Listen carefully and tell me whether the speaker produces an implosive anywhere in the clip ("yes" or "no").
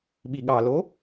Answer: yes